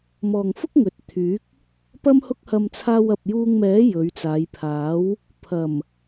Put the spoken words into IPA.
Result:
mɔː˨ŋfʊ˥k̚ ŋɵ˨˥t̚t̪ʰyː˨˥k̚ | pɐ˥mhʊ˥k̚hɐ˧m t͡sʰaː˧wɐ˨p̚juː˧ŋmɛː˨˥ jɵ˨˧ɥt͡saː˨˧jpʰaː˨˥w | pʰɐ˨˩m

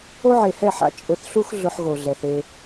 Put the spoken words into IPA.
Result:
o˦ʕe˨hɛ˦˨ħa̰˦ t͡ʃʼʊ˨θɬu˦x ɮʊ˦ħɣo˨ɮɛ˨θe˦

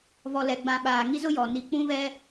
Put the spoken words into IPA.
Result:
vɔ˨lɛ˨ɡ͡bã˨ ɓaː˨ ŋi˦zʊ˦jɔ˨ ni˨k͡pũ˦vɛ˦

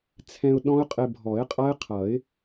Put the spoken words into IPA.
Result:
t͡sʰɛ̃˧ʊ̯ ɗɔ̃˦˥ʊ̯ qʼɪ˧bʱɔ˨˩˦ɪ̯qʼʌ˦˥ɪ̯qʰʌ˨˩˦ɪ̯

